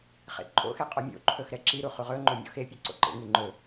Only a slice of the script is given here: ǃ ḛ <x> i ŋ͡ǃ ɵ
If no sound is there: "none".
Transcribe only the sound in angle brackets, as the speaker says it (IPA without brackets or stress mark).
ŋ